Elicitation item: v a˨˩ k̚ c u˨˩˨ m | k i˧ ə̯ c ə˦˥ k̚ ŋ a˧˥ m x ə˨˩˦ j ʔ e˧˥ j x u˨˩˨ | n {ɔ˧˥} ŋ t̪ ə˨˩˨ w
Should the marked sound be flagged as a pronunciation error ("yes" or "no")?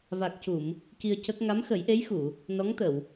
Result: no